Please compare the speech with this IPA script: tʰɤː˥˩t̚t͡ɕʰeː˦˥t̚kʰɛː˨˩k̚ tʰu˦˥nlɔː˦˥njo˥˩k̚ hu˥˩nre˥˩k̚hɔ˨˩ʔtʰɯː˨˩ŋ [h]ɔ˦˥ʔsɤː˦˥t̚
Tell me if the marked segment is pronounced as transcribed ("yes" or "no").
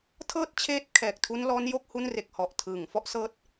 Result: no